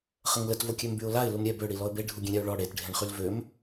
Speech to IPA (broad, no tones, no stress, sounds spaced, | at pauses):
χ ə ŋ l ə t v o kʲ ø m b y ʊ̯ l a ɪ̯ l u m ɾʲ ɛ b ø ɽ i l ɔ ə̯ b e ɖʱ u ɡʲ ẽ ɾʲ a ʊ̯ ɭ ɔ ɽ e t ɖʱ ẽ ɳ χ y l v ø m